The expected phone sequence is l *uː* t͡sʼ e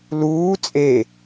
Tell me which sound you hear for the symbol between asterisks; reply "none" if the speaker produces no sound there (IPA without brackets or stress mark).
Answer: uː